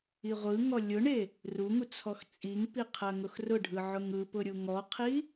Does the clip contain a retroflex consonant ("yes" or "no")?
yes